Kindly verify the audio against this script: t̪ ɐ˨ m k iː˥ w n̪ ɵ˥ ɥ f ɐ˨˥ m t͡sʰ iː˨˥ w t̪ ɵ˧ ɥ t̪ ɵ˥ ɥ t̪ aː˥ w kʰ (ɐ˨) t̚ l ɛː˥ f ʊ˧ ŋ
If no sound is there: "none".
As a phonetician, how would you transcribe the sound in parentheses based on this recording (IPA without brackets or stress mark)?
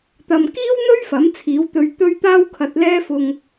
ɐ˧